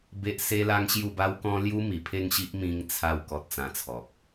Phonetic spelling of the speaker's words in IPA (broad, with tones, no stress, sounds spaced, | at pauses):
b e˦ ʔ s e˦ l a˦ ŋ ɕ j u˥˧ b a˦ w k ɔ̃˦ l j u˦ m i˨˩ pʰ e˥˧ ŋ ɕ i˦ ʔ m ĩ˧ ŋ t͡sʰ a˥˧ w k ɔ˦ t̚ t͡s ã˧ t͡sʰ ɔ˨ k̚